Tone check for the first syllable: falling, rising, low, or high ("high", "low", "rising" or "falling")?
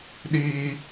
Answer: high